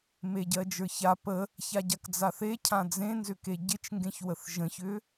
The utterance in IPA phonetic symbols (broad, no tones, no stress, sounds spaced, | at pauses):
m e ɟ ɜ d͡ʒ ə˞ ç a p ə | ç a ɟ a k d͡z a θ e cʰ ã d͡z ẽ n z ʏ k e ɟ ɪ t͡ʃ ŋ ɡ ẽ ç w ə θ ʒ ə̃ ç ʏ